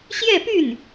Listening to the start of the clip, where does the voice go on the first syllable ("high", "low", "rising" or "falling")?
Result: falling